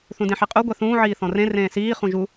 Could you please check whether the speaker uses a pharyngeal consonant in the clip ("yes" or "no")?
yes